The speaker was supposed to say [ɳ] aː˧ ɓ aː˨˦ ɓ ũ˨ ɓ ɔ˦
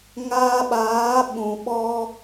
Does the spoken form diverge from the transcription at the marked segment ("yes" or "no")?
yes